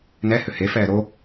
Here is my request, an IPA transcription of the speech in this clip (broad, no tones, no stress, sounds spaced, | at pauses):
n ɛ h ʏ h e f ɛː ɾ o